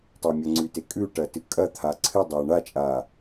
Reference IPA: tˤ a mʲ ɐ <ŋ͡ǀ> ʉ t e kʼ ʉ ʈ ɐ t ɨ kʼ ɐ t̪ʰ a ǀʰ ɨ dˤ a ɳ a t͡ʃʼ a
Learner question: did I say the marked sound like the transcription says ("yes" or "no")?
yes